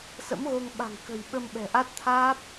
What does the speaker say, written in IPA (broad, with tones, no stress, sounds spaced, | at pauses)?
s ə̰˧˥ m ɣ o˧ ŋ ɓ a̤˨˩ ŋ k ə̤˨˩ j ɓ ə˧ m ɓ ɛ̤˨˩ ʔ a˦˥ t̚ t̪ʰ aː˦˥ p̚